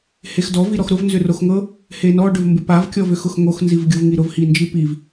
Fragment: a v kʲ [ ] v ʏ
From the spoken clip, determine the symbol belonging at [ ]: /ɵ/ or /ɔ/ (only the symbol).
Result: ɔ